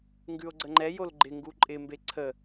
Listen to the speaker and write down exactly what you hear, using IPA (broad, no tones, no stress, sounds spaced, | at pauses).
ŋ ɡ ʉ o̯ ɡ͡ǀ ə ŋ͡ǃ ɛ j o l ɡ͡ǃ ɪ ŋ ɡ u ǃʼ ɪ m b e ǀʰ ə